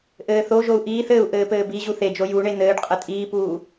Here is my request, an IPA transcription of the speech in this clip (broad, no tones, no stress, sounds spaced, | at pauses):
ʔ ɘː θ o ʒ o u̯ ʔ iː θ ɘː u̯ ʔ ɘː p ɘː b i ʑ u θ e d͡ʒ o j u ɳ e n̪ ɘː ɖ qʼ ɘ tʼ iː p uː